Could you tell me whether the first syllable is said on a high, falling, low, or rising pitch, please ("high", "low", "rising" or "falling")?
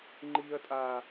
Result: low